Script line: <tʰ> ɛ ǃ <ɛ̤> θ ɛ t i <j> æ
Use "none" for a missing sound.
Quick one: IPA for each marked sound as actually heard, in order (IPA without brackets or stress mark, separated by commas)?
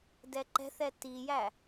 d, ɛ̤, j